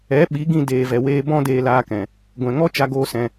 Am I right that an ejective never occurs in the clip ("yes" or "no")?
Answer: yes